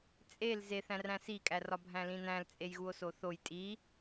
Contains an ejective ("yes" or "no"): yes